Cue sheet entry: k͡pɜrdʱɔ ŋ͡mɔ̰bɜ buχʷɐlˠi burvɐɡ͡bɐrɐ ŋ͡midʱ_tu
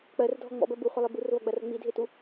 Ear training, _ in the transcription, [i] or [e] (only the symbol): e